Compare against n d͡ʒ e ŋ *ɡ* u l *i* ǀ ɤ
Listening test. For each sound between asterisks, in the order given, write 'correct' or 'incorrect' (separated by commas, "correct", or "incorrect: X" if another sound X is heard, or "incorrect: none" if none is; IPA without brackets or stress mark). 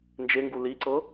correct, correct